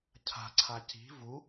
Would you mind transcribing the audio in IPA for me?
cʰ a̤ ǀʰ a c i̤ v u

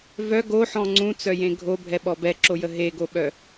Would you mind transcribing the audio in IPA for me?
v œ ɡ o ħ ɔ̃ ŋ͡ǀ ũ t͡s œ j ẽ ɡʱ o bʱ ɛ ɓ ɔ b ɛ ǁ o j ə ɦ e ɡ o ɓ œ

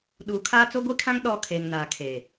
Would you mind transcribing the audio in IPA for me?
ɗ uː˨ kʰ aː˦ t͡s o˦ ɡʷ i˦ kʰ ã˦ ŋ ɗ ɔ˦ kʰ eː˨ ŋ n aː˨ kʰ e˨

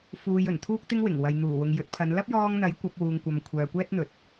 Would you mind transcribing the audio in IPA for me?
f uː˧ j ɵ˨˩ n t̪ʰ uː˥ k̚ t̪ ɪ˥ ŋ w ɪ˨˩ ŋ w ɐ˨ j n̪ uː˨˩ w ʊ˨ ŋ j ɵ˨˥ t̚ pʰ ɐ˨˧ n l ɐ˥ p̚ j ɔː˧ ŋ n̪ ɐ˨˥ j kʷ ɐ˨˥ p̚ w uː˨ ŋ kʷ ɐ˨ m kʷʰ œː˨ kʷ ɛː˥ t̚ n̪ ɵ˨˥ t̚

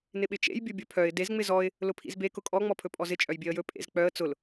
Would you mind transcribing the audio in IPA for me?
n ɪ ɓ ɪ t͡ʃ ḛ j bʲ ɵ bʲ ɵ pʰ œ ɪ̯ d e z ŋ͡m ɪ z ɔ ɪ̯ | l ʊ pʰ ḭ z b e k ʊ kʼ ɔ ŋ͡m ɔ pʰ ɵ pʼ ɔ z ɪ t͡ʃʼ œ j bʲ e ə̯ j ɵ pʼ ḛ z k͡p œ ə̯ t͡s ʊ l

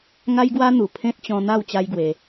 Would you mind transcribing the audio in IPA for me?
ŋ a˦ j ɡ w a˦ n̪ u˨˩ pʰ ẽ˦ t̚ t͡ɕ ɔ̃˧ n̪ a˥˧ w t͡ɕ a˦ j ɡ w e˧

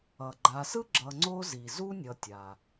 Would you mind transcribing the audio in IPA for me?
ʌ˩ ɡ͡ǃ a˨ s ɯ˥ ɡ͡ǁ ʌ˨ ŋ͡ǀ o˥ z i˩ z u˥ nʲ ʌ˨ tʲ a˩

